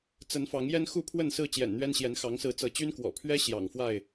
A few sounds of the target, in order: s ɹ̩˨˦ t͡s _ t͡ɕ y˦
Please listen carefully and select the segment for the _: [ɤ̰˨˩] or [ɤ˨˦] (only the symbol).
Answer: ɤ˨˦